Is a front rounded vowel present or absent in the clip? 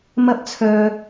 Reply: present